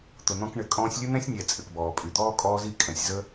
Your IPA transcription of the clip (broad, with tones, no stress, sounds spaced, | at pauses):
t̪ ʊ˨ n̪ ɔ̃˧ k ɳ ɘ˨˦ kʼ ɔ̃ː˧ sʲ lʲ ɘ˦ n̪ ɛ̃˦ sʲ nʲ ɛ˨ t͡sʼ ɘ˨ k b ɔː˨ pʼ y˨ d̪ ɔː˦ kʼ ɔː˦ z i˦ kʼ ɛ̃˨ sʲ z ə˦